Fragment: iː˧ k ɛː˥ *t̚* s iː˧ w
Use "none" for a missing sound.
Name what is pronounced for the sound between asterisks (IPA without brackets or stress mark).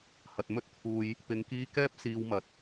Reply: p̚